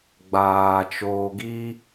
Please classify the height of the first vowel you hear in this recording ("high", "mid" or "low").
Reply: low